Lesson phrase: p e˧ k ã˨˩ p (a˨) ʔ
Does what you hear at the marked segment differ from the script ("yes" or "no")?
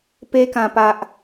no